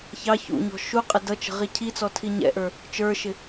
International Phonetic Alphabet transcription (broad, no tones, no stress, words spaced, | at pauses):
çɑ çṵɲɔ̤ ʃuqʼɛ dʌt͡ʃə̤ ʁicʰit͡sɔ tʰiɲɛ̰ʔə˞ | t͡ʃə˞ʃɪ